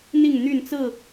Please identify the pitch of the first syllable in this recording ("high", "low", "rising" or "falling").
falling